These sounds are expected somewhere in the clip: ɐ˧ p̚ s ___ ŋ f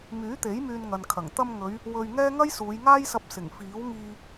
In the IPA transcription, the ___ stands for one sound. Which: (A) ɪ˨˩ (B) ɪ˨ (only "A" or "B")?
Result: A